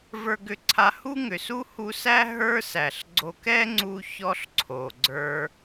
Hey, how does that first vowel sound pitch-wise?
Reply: high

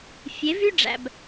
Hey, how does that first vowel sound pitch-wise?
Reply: rising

